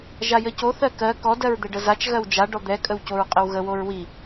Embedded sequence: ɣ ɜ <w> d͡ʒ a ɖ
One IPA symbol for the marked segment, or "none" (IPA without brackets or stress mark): w